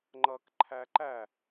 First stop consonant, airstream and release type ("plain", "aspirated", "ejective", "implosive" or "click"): click